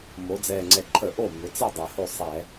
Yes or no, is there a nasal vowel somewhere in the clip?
no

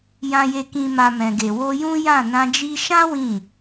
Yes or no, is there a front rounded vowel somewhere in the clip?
no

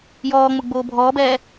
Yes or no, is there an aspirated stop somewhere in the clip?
no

